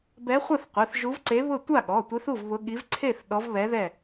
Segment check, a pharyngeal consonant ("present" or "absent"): absent